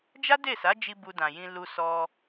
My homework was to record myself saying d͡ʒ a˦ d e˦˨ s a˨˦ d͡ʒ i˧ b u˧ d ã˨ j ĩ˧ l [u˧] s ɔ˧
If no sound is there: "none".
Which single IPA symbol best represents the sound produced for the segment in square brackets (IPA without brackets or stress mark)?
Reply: u˧